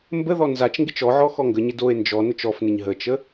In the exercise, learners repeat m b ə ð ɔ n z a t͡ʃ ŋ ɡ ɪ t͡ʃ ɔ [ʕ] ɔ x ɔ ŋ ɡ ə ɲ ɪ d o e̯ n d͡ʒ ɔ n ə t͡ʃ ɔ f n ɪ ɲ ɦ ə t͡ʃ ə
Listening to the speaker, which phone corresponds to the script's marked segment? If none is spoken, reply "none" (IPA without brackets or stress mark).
ʕ